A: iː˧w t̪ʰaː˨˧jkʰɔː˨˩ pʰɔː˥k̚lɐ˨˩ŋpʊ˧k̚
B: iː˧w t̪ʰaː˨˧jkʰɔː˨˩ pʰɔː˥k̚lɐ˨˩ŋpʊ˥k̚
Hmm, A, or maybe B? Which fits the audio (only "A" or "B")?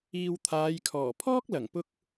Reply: A